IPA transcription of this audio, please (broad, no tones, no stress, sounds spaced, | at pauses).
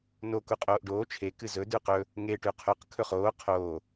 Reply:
n o k u qʼ oː ʔ ɖ oː t͡ʃʰ e k ɨ z ɵ d ʉ q ɵ | ŋ e ʈ ʉ qʰ ɵ q kʰ ɵ χ oː qʰ oː